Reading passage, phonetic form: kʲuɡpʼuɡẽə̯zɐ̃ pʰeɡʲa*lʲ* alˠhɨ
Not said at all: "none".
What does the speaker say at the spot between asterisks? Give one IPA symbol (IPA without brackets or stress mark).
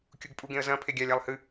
lʲ